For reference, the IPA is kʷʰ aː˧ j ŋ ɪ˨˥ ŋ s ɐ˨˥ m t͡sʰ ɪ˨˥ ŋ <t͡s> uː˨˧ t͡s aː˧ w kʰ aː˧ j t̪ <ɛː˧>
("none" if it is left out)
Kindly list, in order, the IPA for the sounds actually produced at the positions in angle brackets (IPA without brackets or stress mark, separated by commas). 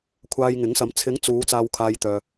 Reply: t͡s, œː˧